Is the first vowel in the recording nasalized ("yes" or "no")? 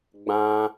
yes